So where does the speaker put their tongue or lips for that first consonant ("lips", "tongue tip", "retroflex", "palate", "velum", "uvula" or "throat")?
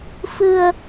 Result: lips